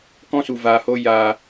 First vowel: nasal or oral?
nasal